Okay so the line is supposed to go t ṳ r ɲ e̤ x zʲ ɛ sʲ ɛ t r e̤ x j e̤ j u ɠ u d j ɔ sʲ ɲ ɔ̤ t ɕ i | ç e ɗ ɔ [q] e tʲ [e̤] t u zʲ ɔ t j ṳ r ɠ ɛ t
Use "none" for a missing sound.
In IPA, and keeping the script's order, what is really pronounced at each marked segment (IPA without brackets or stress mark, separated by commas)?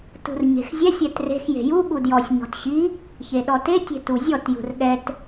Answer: t, e̤